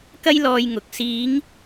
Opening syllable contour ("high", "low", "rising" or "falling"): high